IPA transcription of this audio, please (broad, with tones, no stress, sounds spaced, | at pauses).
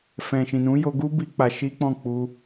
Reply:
f ɛ̃˨ ʃ ĩ˨ n ũ˨˦ j o˧ ɡ u˦ b i˦ k͡p a˧ ʃ i˦ k͡p ɔ̃˦˨ k͡p u˧